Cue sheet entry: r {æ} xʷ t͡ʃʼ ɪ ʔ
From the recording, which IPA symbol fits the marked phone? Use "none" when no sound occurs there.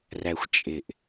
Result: æ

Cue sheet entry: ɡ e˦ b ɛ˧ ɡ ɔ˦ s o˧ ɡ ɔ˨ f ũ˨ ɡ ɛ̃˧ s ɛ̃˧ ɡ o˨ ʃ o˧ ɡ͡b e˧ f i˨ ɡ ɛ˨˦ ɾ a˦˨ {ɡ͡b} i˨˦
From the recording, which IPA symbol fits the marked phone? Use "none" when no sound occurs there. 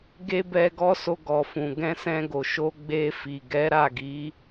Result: ɡ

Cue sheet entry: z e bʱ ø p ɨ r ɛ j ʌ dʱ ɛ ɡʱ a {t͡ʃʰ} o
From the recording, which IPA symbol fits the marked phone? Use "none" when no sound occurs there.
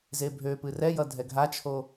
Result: t͡ʃʰ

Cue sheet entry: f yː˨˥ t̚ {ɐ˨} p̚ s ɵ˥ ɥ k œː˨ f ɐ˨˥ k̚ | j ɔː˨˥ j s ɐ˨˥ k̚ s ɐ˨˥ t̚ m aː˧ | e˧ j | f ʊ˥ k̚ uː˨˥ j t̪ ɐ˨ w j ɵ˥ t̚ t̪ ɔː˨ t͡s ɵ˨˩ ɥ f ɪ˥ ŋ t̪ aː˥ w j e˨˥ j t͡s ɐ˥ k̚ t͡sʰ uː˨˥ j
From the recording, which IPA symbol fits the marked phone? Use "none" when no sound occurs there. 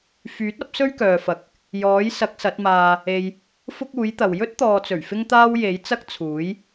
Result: ɐ˨˥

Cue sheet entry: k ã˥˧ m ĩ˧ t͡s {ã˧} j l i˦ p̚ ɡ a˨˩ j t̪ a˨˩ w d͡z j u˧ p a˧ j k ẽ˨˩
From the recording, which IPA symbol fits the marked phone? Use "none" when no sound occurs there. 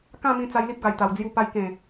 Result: a˧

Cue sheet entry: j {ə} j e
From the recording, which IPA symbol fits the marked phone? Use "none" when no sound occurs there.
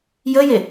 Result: ə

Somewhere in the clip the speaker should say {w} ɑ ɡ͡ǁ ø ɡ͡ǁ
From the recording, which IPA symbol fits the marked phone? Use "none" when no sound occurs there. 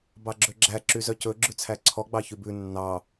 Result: b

